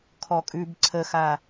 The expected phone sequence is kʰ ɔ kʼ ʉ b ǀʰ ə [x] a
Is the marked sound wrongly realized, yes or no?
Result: no